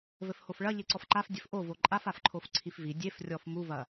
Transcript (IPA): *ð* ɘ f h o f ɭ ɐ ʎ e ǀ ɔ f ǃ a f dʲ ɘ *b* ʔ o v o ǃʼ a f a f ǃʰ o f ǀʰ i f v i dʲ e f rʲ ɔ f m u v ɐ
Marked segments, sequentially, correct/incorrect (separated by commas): incorrect, incorrect